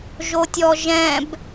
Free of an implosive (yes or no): yes